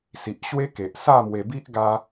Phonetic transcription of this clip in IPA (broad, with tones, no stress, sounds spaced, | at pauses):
s i˨ ʔ ɕ w e˦ k e˨ ʔ s a˥˧ m w e˧ b i˦ ʔ ɡ a˦